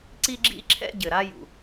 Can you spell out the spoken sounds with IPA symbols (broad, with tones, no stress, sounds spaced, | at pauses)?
ǀ i˧ ɡ͡ǁ ḭ˧ ǁʰ ɛ̰˧ ɟ ɘ˨ ɾ a˦ j ṵ˨